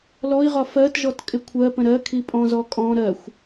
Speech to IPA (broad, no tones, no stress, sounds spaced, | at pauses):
l ɔ i̯ ʁ ɒ f ɜ t ʒ ɔ t kʼ ɪ kʷʰ ɜ p ə̃ ɾ ɜ kʰ i pʼ ɔ̃ z ɔ kʼ ɔ̃ ɾ ɜ xʷ